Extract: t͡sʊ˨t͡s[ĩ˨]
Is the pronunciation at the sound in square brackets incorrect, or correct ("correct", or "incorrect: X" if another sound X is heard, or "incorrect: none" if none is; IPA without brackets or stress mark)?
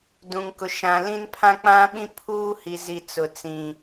correct